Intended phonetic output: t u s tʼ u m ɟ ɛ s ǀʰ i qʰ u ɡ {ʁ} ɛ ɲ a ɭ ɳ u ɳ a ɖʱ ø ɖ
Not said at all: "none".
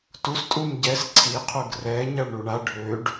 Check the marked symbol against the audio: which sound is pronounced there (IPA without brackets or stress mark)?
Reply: r